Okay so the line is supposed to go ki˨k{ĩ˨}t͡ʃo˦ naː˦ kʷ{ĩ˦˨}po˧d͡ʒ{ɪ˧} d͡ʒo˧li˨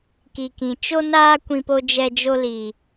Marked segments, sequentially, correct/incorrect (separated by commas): correct, incorrect, incorrect